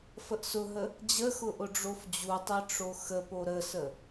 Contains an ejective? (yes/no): no